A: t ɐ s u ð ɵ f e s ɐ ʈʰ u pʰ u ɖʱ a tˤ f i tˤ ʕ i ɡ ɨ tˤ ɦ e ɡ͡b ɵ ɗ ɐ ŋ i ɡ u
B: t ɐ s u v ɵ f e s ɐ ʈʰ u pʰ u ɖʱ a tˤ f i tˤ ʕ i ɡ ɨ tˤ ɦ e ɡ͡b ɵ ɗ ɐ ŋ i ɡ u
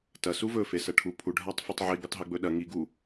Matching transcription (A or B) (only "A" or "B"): B